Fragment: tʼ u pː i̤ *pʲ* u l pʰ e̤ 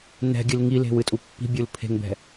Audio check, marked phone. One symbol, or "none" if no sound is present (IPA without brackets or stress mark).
bʲ